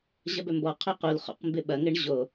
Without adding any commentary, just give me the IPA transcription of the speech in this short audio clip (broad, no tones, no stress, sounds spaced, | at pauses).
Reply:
ʑ ɐ b œ m b ɔ qʰ ø q u l χ o̰ q m b ɪ ɓ ɐ ŋ ɪ ɳ ʑ o